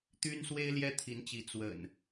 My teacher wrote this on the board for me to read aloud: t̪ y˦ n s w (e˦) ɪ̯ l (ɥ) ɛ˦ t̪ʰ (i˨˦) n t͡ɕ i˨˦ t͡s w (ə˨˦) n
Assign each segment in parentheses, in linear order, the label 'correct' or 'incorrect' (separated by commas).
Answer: correct, incorrect, correct, incorrect